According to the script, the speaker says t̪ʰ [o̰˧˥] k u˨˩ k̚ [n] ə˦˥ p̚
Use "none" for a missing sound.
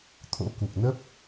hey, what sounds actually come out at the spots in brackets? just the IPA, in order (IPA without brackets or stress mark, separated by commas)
o̰˧˥, n